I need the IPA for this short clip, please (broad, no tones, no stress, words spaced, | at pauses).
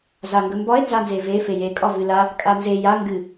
zaŋɡəmbɒe̯ nzanzeve feje kʼɒvɨla | kʼanze ja ŋɡɨ